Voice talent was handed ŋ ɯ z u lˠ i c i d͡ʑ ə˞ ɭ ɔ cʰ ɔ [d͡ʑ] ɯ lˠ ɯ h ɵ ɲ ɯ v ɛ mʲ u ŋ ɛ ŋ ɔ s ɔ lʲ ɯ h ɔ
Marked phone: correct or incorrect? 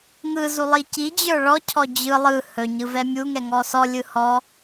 correct